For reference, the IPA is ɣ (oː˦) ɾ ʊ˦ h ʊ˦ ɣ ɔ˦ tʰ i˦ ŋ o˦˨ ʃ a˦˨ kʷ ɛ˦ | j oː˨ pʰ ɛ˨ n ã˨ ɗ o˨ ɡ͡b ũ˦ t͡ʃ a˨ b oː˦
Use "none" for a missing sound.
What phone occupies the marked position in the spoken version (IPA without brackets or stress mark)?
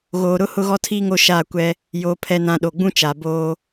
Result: oː˨